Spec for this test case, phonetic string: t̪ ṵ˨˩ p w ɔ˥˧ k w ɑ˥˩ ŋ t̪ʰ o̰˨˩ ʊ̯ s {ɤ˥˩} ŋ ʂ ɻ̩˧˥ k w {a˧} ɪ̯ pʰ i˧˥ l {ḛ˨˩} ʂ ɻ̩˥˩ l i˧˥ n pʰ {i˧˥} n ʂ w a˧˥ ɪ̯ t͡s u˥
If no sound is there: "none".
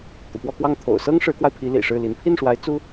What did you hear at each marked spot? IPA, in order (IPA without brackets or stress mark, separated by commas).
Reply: ɤ˥, a˧, ḭ˨˩, i˥˩